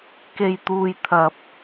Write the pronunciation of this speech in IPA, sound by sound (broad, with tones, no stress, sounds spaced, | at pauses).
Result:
k e˧ j t̪ uː˧ j t̪ʰ ɐ˧ p̚